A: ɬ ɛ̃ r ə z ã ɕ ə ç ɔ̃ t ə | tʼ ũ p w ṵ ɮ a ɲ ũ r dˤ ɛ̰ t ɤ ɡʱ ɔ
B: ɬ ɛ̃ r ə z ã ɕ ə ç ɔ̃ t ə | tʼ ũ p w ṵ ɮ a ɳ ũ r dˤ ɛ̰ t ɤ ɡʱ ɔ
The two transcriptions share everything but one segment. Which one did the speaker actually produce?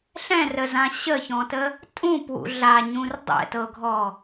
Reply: A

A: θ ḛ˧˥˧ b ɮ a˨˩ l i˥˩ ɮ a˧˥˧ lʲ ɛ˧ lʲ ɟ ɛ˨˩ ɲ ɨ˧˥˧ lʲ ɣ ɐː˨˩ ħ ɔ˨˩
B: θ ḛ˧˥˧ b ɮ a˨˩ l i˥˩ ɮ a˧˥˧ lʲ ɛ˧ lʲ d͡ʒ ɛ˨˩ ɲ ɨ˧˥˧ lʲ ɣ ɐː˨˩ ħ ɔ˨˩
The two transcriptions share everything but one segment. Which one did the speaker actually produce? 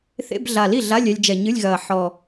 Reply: B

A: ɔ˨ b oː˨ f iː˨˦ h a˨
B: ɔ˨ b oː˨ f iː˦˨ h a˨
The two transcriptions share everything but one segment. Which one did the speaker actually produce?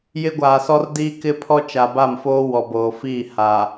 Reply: B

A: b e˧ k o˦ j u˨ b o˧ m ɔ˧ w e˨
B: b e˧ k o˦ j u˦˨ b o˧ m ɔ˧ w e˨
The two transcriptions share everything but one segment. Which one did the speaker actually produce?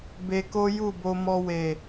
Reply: B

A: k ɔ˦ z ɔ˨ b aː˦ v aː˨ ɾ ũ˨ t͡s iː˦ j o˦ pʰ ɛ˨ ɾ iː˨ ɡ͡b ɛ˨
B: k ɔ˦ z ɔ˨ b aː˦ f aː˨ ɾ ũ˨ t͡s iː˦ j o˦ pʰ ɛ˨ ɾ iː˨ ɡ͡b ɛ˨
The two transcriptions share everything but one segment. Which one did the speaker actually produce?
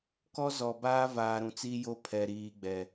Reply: A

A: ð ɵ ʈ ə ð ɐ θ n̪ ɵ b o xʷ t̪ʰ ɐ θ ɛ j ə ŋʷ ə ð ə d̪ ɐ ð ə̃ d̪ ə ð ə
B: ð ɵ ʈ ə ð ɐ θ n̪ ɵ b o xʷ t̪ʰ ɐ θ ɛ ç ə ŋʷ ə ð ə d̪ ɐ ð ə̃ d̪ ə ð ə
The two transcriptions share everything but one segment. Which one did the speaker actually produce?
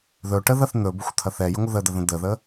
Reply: A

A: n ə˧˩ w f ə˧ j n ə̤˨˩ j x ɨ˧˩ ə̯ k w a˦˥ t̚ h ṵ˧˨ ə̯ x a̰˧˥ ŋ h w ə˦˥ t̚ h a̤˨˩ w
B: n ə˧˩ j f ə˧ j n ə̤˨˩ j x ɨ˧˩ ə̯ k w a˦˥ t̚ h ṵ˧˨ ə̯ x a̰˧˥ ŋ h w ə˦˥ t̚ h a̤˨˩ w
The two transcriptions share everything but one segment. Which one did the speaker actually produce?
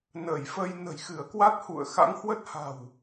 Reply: B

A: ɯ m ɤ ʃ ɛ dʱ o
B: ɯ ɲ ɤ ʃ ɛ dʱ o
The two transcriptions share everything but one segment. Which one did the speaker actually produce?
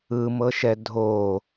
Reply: A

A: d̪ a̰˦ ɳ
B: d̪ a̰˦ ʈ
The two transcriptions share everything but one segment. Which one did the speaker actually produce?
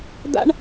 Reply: A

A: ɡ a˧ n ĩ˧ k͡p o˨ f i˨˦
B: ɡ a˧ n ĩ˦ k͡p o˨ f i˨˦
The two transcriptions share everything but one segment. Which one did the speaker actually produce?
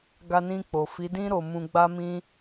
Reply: A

